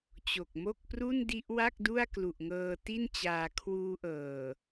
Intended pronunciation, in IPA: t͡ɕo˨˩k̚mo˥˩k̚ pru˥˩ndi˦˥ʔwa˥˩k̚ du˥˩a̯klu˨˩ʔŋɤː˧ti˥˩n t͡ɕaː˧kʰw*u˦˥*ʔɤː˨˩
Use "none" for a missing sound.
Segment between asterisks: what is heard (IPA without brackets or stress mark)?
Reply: uː˦˥